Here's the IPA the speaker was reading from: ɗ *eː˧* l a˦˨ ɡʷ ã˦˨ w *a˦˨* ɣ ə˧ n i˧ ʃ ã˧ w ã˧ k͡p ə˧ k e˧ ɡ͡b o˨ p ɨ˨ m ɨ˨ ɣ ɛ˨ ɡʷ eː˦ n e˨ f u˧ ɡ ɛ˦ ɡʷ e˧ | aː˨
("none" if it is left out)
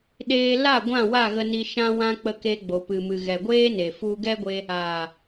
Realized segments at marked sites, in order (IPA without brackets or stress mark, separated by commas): eː˧, a˦˨